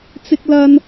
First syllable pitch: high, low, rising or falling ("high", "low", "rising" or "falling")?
high